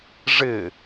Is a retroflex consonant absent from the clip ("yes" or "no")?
no